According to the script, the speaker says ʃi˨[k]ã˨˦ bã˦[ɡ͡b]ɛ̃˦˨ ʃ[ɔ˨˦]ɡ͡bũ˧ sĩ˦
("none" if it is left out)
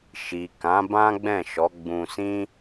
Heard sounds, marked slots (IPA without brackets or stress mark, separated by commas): k, ɡ͡b, ɔ˨˦